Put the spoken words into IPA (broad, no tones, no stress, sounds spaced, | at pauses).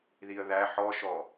ð i ə̯ ð æ ħ ɔ ʃ ɔ